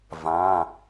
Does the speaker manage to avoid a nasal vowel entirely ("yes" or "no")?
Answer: no